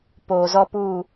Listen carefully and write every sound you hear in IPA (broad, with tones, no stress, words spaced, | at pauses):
poː˨zɔ˦puː˦˨